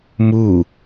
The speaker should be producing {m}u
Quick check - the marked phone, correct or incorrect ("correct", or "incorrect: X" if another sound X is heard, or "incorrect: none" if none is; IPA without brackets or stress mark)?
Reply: correct